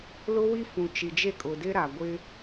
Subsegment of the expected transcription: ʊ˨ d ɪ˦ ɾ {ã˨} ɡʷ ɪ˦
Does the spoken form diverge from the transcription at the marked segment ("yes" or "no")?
yes